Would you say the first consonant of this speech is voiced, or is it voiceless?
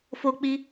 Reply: voiceless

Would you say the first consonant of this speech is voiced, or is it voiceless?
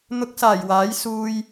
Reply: voiced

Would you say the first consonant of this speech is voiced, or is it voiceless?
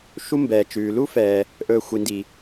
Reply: voiceless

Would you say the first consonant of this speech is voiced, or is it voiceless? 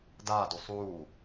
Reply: voiced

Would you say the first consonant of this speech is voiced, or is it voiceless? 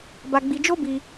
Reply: voiced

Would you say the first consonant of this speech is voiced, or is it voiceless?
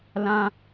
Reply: voiced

